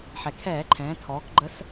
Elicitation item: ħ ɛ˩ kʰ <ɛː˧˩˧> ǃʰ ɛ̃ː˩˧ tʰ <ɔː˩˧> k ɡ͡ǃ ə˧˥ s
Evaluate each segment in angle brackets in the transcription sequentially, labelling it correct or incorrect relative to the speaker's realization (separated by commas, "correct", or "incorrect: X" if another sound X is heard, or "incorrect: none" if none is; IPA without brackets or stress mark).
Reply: correct, correct